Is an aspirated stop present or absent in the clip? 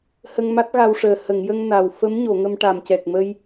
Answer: absent